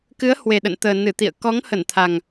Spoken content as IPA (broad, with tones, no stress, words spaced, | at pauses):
kɨ˨˦ə̯hwe˨˩ ɗə̰˧˨nt̪əː˨˩ nɨ˧˩ t̪ḭ˧˨ə̯ kɔ˨˦ŋhə˧˩nt̪ʰa˨˩ŋ